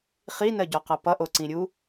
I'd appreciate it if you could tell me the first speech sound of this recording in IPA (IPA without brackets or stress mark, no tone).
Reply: χ